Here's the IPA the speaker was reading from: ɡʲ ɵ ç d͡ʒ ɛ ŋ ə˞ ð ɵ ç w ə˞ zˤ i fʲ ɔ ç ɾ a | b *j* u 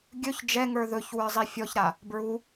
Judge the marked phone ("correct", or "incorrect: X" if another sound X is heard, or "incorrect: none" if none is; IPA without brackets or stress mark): incorrect: ɹ